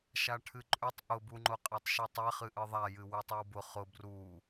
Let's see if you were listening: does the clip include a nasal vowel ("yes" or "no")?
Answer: no